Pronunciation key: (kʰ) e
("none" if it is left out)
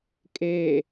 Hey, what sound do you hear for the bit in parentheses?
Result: kʼ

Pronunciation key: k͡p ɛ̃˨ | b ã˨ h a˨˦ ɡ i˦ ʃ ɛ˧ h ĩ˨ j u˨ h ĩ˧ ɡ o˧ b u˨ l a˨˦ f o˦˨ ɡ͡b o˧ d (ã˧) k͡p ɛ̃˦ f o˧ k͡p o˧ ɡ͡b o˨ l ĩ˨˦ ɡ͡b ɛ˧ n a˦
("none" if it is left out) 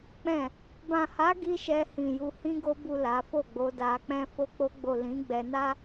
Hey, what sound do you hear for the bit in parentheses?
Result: a˧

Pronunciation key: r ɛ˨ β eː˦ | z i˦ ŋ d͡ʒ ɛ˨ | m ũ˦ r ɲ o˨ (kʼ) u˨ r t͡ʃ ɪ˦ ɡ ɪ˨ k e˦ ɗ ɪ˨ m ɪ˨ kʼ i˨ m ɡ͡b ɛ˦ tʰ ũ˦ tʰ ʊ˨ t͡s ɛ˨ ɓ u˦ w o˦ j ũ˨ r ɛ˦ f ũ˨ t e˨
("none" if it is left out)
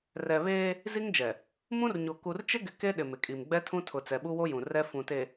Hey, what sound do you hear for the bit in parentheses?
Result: k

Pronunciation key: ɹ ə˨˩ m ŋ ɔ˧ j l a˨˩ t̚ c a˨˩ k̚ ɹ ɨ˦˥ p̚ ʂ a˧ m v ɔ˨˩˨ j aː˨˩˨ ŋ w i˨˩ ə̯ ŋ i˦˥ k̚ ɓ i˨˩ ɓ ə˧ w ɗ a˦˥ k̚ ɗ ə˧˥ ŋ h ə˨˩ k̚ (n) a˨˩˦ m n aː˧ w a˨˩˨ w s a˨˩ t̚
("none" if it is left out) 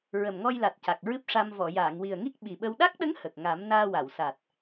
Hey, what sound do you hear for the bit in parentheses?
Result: ŋ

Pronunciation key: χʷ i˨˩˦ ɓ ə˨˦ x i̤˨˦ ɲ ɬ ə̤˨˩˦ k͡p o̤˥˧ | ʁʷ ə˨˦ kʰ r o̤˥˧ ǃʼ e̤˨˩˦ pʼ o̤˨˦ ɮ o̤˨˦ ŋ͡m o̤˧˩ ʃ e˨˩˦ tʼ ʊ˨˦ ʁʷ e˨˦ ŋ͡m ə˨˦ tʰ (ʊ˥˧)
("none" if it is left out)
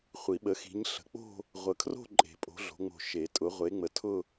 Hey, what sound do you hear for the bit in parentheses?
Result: ʊ˥˧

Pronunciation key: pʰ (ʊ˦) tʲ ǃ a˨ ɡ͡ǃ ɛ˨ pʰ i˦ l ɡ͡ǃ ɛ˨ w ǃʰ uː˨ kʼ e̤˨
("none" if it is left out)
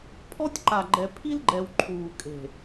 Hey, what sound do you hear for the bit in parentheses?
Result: ɔ˦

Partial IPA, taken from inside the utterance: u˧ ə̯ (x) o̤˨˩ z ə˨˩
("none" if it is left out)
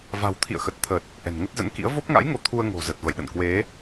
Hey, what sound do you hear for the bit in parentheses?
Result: ŋ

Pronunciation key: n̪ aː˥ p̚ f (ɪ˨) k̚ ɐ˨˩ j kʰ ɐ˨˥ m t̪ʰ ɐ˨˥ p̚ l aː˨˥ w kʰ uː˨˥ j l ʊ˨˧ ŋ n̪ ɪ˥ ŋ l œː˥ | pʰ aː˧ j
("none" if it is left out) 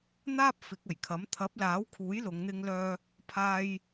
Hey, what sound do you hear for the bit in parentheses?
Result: ɪ˨˥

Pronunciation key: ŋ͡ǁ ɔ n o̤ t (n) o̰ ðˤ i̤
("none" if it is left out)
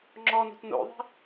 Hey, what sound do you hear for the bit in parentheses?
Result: n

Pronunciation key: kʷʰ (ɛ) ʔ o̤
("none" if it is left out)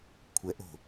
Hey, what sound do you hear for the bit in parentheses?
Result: ɛ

